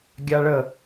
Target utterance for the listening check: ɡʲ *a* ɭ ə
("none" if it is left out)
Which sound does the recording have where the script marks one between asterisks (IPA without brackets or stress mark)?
a